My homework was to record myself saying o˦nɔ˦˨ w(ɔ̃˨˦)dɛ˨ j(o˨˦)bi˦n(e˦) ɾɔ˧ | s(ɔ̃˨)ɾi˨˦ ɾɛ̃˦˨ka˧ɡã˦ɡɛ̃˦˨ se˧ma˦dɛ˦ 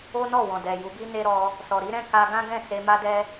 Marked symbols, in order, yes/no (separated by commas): no, no, yes, no